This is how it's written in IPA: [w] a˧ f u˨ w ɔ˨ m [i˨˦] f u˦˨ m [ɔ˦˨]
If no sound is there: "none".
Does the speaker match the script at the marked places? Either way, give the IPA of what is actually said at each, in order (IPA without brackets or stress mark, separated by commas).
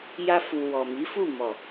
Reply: j, i˨˦, ɔ˨